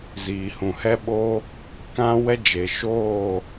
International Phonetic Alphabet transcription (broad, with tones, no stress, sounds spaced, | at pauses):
z iː˨ h ũ˨ h ɛ˦ ɓ o˦ | k ã˦ w ɛ˦ d͡ʒ e˨ ʃ oː˦˨